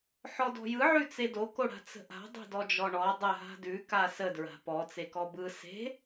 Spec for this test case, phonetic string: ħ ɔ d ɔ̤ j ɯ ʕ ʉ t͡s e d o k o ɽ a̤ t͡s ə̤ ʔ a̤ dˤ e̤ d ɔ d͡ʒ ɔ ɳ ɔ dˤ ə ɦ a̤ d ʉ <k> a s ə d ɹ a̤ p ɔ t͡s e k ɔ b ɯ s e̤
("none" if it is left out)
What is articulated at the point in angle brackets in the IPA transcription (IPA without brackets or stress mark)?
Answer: k